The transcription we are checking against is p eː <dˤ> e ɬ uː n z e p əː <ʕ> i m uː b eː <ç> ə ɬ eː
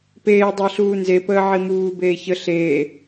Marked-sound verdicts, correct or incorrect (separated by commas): correct, correct, correct